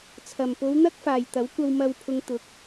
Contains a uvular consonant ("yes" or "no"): no